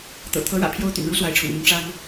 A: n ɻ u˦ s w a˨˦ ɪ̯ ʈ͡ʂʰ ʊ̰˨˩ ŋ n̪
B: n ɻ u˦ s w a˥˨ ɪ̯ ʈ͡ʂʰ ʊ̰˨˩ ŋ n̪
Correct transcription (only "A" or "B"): A